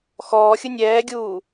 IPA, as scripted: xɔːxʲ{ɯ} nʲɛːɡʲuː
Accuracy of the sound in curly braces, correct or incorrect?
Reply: correct